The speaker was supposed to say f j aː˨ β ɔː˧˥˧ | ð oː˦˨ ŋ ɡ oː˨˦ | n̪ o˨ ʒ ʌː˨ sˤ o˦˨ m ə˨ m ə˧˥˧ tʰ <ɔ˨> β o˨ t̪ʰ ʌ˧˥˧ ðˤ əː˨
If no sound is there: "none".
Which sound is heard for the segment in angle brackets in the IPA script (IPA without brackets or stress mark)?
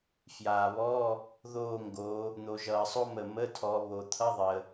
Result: ɔ˨˦